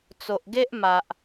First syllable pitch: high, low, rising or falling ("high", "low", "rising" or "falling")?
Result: low